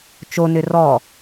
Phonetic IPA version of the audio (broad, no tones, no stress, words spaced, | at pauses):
t͡ʃonʏ rɔ